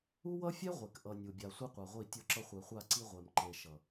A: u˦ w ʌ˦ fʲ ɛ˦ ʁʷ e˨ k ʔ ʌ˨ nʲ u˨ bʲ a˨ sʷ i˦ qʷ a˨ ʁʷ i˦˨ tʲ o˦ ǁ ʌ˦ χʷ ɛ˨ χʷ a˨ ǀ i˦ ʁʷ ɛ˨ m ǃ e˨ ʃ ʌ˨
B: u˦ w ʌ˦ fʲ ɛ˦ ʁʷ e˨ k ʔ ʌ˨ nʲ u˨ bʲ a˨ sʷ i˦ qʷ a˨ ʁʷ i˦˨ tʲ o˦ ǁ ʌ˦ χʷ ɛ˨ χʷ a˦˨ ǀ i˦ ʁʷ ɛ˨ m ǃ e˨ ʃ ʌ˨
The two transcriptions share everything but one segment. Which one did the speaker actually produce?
B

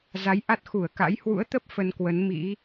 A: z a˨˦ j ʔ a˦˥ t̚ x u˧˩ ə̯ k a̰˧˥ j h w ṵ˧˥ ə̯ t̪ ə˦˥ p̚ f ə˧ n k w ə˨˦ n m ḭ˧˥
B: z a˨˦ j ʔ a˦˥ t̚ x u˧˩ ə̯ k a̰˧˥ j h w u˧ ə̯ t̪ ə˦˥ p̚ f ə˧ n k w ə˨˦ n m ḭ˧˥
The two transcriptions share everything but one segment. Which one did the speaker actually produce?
A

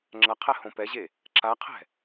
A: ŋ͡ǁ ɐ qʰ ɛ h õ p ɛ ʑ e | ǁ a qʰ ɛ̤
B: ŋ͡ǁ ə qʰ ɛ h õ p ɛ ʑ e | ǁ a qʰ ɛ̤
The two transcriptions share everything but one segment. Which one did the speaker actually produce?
A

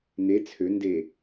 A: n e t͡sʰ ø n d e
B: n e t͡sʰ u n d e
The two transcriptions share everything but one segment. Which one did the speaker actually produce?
A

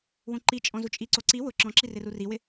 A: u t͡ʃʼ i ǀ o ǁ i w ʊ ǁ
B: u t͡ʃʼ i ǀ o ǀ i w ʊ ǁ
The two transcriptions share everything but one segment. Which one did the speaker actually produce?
B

